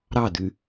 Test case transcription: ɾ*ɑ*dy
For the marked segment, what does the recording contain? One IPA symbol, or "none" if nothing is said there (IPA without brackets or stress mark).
ɑ